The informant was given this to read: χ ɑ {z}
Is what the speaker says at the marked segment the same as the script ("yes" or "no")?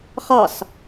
no